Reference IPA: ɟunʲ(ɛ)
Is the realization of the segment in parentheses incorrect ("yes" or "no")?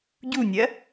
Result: yes